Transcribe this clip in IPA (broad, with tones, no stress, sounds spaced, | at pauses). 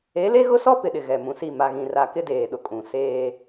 e˨˦ l e˦ ɣ ʊ˦ s ɔ˦ p ɪ˨ ɗ ɪ˨ ɣ ɛ˨ m ũ˨ s i˦˨ m a˨ ɣ ĩ˨ r a˨ k ɪ˦ d eː˨ ɗ ʊ˨ kʼ ũ˨ s eː˦